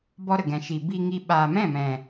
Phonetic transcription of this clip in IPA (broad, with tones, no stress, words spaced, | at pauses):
bɔ˦ɾə˨ ɡɛ̃˨ʃi˨bi˧ ŋi˧ ɓaː˨mɛ̃˦˨mɛ̃˨